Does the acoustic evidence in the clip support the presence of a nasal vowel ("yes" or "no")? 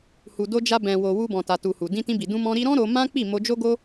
yes